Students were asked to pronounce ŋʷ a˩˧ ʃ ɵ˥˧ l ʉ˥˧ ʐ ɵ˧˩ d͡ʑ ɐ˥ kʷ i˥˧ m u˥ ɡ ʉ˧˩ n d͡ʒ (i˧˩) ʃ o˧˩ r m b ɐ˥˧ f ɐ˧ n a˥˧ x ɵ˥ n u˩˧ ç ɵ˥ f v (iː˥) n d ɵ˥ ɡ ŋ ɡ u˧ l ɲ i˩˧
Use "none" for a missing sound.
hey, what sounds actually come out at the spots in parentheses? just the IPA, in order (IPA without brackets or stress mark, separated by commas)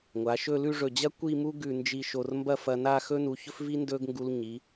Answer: i˧˩, i˥